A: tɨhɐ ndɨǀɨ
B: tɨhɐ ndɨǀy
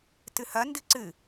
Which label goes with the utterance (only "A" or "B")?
A